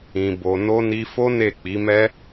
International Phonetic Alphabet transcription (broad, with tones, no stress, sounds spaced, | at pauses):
ĩ˨ b o˨ n o˧ n i˧ f o˦ n e˦˨ k͡p i˨˦ m ɛ˦